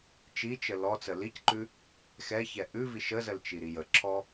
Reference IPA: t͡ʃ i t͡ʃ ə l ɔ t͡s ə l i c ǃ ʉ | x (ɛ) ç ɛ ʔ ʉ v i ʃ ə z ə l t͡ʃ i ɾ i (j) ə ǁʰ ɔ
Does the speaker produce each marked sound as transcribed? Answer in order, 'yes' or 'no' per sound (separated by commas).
yes, yes